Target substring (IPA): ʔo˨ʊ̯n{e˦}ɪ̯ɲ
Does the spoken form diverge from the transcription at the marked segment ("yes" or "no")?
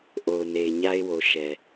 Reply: yes